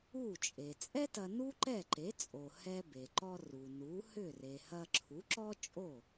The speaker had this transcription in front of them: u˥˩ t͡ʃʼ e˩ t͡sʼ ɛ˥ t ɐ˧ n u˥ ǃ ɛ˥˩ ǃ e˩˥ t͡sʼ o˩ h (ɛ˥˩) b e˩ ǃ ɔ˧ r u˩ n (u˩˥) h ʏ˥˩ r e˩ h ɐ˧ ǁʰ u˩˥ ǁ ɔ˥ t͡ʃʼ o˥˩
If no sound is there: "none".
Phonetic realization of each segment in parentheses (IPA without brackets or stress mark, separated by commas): ɛ˧, u˩˥